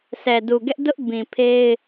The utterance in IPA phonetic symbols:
sɛ˨ du˨ɡɛ˦ʔ dʊ˦ʔ bĩ˨pʰe˦ɪ̯

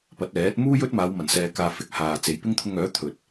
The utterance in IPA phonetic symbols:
pɐ˨˥t̚ɛː˨˥t̚ muː˥jɵ˥t̚maː˨˧w mɐ˨˩nsɛː˨kaː˨fɪ˨˥k̚ haː˨t͡se˨˧j pɪ˥ŋt̪ʰʊ˧ŋœː˨˥t̪ʰɵ˨t̚

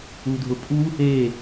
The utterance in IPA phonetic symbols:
udʱʊpʼu | e

